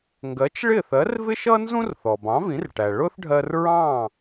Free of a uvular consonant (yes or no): yes